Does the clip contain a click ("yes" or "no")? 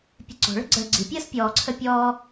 yes